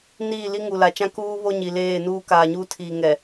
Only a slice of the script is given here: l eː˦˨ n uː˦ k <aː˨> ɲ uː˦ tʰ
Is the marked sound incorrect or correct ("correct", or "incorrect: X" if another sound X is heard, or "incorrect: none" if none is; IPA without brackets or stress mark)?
correct